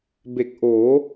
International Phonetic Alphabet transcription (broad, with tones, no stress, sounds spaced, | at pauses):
b e˨˩ k̚ ʔ oː˩˦